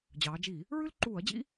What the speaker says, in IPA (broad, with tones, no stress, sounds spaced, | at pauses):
d͡ʑ ɑː˩˧ d͡ʒ i˧˩˧ | ɹ ʉ˦ l ǃ uː˧˩˧ ɐ̯ d͡ʑ ḭ˦